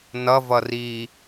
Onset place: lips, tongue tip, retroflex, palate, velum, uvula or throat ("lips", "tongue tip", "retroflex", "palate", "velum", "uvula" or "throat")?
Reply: tongue tip